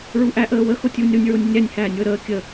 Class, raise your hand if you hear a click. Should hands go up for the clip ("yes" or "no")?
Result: no